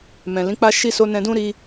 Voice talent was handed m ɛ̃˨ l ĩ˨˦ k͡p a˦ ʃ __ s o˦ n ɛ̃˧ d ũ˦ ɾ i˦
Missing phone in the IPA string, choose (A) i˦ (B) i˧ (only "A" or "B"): A